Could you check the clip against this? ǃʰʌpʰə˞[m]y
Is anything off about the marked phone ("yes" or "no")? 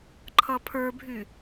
yes